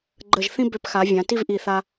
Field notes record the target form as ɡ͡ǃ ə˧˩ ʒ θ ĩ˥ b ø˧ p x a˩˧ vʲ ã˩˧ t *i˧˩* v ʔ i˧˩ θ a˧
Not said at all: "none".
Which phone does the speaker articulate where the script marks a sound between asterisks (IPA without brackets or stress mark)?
i˥˧